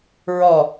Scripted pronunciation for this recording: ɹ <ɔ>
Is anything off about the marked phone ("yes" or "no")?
no